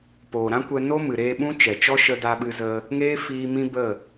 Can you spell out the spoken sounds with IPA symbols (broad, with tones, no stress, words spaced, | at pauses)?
poː˨ɾã˦kʷɛ˧ no˦mɨ˨ɾeː˧ɓũ˦ t͡ʃɛ˨t͡ʃɔ˦ ʃə˧da˧ɓɨ˧zə˧ | ŋeː˦fiː˧ mĩ˦bə˦˨